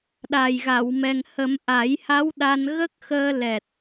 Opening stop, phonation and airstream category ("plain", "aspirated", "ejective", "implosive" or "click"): implosive